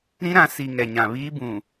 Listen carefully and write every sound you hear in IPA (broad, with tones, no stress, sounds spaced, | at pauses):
ɾ ĩ˦ ɾ ã˨˦ s i˨ ŋ ɛ˨ ɲ ã˨ β iː˦ b ũ˨